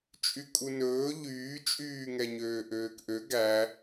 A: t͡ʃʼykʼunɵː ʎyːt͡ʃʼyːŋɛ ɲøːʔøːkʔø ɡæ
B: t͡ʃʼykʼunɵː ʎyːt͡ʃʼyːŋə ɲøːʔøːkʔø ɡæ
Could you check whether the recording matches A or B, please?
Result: A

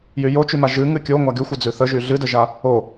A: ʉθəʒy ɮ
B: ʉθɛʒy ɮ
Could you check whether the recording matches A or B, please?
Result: A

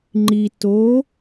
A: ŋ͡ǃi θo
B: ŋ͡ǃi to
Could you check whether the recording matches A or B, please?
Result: B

